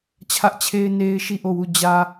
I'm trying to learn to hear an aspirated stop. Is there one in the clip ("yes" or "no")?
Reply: yes